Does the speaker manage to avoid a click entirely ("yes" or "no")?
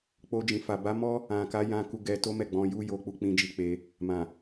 yes